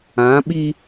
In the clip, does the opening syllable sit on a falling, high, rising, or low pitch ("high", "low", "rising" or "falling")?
rising